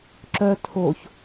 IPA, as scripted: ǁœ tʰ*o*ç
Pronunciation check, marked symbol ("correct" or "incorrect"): correct